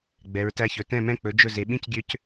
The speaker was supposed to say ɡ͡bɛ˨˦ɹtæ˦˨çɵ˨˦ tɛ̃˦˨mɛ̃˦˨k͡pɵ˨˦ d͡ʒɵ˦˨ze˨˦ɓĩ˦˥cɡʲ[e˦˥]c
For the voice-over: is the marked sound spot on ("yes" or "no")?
no